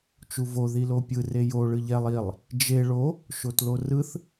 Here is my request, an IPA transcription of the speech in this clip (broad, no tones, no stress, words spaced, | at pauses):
t͡ʃuvo ðilopʲɯ rejo ɭɯʎɛlˠ ilˠ | d͡ʒe ɭo | ʃotlorɯθ